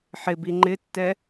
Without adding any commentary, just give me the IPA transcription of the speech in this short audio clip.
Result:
ħ ɪ b i ŋ͡ǃ ɪ tː ɛ

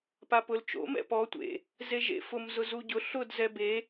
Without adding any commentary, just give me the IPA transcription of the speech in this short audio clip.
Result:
p a p ʊ l t͡ʃ o̰ m ɛ̰ p ɔ tʷ ḛ | z e ʒ ḛ f ʊ m z ʊ z u ɟ ʊ ɬ ʊ d z ɛ b e

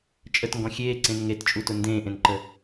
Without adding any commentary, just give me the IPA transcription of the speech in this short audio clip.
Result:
t͡ʃʼ ə t ŋ ɡ ɔ̃ xʲ eː ǀ ẽ n ŋ e t t͡ʃʼ u t ʊ n d ẽː ʔ ẽ n ǃ ə

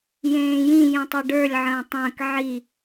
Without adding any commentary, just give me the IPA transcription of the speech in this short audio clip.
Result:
j ẽː j ĩ j ĩ tˤ o ɖ ə˞ lʲ ʕ ə̃ː tˤ ə̃ː k ʕ i

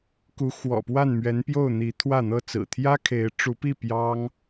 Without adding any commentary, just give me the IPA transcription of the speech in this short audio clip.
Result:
k u˧˥ x w ɔ̰˨˩ p w a˥˩ n m ɥ ɛ˧˥ n p j o˥˩ ʊ̯ n̪ i˧˥ t̪ʰ w ä˥˩ n̪ ɤ˥ t͡s ɹ̩˨˩ t̪ʰ j ä˥ kʰ e˧˥ ɪ̯ ʈ͡ʂ u˧˥ p i˥˩ p j ɑ˥ ŋ

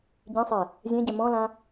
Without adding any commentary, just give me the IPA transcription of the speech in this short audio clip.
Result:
ɟ ĩ sˤ ɛ | zʲ ɛ̃ ɟ ɛ m ɔ̃ l ã

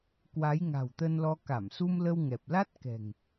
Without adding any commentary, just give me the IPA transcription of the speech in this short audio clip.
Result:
k w a˨˦ j ŋ a̤˨˩ w t̪ ə˧ n l ɔ˧ k a˧˩ m s u˧ m l ə˧ w ŋ ɛ˨˩ p̚ l a˦˥ t̚ k ɛ̤˨˩ ŋ

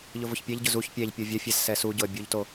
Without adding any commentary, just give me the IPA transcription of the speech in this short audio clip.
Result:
ʎ ʊ v ʊ ç pʲ ɛ ʎ ɟ ʊ z u ç pʲ ɛ ʎ pʲ o vʲ œ fʲ ɛ z s ɛ s u ɟ ʊ ə̯ bʲ u ʎ t o

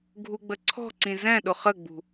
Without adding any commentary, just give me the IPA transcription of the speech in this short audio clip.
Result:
ɡʱ u ɡ͡b ə ǀʰ ɔ̤ ǀ ĩ z ɛ̃ ɗ ʊ χ ə ɡ͡b ṳ

